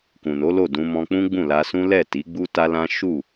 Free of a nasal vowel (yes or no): no